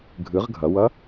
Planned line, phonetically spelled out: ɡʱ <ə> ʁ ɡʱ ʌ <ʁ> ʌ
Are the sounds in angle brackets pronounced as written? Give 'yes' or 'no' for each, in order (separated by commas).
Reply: no, no